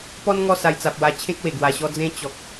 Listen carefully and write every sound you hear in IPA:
pɔ˦n ŋɔ˥˧ sa˧jt͡sa˨p̚wa˧ t͡ɕʰẽ˦k̚ we˨˩ɡwa˧ɕɔ˦ d͡zẽ˦ t͡ɕɔ˨k̚

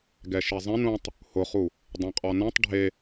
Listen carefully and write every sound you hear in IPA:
ɡɛʃizˤẽn ũtˤ | hʊχu | dˤɛ̃qʼɔnɛ̃tˤ ɖʱe

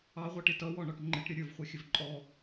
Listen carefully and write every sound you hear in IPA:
ɑʁʷʌʈɪ tʌwɔɳɔʈ ŋ͡ǃɪʈɾʲʌ ɾʲə˞vχʷə˞xʲəv ǃʼɔ

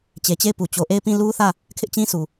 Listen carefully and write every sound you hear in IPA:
t͡ɕe˨t͡ɕe˦˨ɪ̯pu˨ t͡ɕo˨ʔe˦˨ɪ̯pĩ˦˨ lu˦θä˦˨ | kʰɪ˦ʔt͡ɕĩ˦su˨

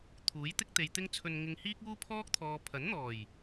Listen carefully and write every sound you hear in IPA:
t̪ʰuː˨˥jt̪ɪ˥k̚t̪e˨jt̪ɪ˥ŋ t͡sʰɵ˧nŋɪ˧ŋhiː˥k̚ uː˥pʰɔː˥k̚ t̪ʰɔː˨pʰɐ˨˥nn̪ɔː˨˩j

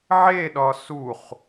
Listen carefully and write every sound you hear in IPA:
ʕeɗɒ suχ

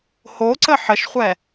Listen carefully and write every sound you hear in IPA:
hoǀə ħəʃχʷɛ

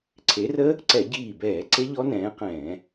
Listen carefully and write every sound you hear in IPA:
ǀʰe˨˦rə˦˥ | ǀɛ˧˩˧ɟiː˧˩bɛː˧˩˧ ǀe˦˥ʎɔ˦˥nɛ̃ː˨˦qɛ̃ː˧˩˧

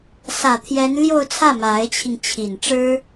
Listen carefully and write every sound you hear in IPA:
sä˨˩t̪ʰjɛ˧˥n ljo˥˧ʊ̯t͡sʰä˥˩ ma˧˥ɪ̯t͡ɕʰi˧ŋ t͡ɕʰi˨˩nʈ͡ʂɻ̩˥

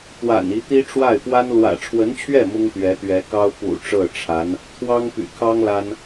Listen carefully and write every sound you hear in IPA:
t̪wa̰˨˩n i˧˥t̪i˥ʈ͡ʂwa˥˩ɪ̯ pwa˥n lwä̰˨˩ʈ͡ʂʰwə˧˥nt͡ɕʰɥɛ˥˩ mʊ˥ŋt̪ɥɛ˧˥t̪ɥɛ˧˥kɑ˥ʊ̯ pṵ˨˩ ʈ͡ʂɤ˥˩ʈ͡ʂʰa˧˥n | t̪ʰwɑ˥ŋpy̰˨˩kʰɑ˥ŋ la˥n

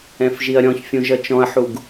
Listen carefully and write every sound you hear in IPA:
ɛ̃fʒiɐ̯ɾʲɔ̃çfʲũ ʒʌt͡ʃɔ̃ɐ̯ħuɡ

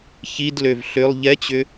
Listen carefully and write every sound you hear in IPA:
çidløv ɬʏlˠ ʎɛt͡ɕʏ

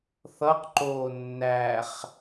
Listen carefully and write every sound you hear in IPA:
θʌqǃoː nːæχ

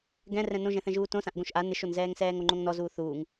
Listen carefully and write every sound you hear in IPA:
ɡɛ̃ rɛ̃nõʒɛ̃θɛ̃ ʒuːtõsãʔ ɡõʃʔa nɪʃonzɛːŋ sɛːŋoŋ͡ǃõŋnɔ zuːθuːŋ

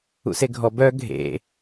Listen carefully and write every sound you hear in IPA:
ṵseɡʱɔ bœ ɡʱḛ

